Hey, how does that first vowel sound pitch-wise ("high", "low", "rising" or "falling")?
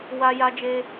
high